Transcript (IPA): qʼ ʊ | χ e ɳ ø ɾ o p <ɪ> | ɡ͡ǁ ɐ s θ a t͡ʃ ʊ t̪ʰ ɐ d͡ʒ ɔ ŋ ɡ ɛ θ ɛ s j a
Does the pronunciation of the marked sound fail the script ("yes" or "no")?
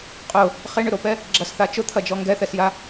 yes